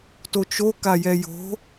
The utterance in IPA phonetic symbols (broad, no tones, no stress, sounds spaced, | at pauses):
t o t͡ʃ o k a j ɛ j o̤